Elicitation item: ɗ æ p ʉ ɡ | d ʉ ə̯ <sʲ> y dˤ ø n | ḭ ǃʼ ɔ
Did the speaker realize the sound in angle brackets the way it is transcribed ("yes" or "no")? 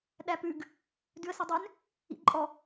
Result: no